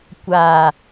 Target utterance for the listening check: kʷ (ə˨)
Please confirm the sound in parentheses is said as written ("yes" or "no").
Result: no